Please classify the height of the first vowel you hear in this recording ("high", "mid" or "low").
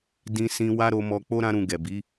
high